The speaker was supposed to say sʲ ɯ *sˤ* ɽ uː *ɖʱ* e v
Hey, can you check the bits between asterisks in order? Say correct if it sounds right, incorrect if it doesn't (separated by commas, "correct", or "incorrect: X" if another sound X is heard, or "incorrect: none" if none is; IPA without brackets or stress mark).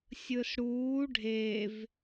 incorrect: s, correct